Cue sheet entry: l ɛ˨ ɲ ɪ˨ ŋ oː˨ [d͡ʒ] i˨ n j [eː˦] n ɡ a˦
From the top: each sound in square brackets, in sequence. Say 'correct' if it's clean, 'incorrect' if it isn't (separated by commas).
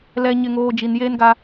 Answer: correct, correct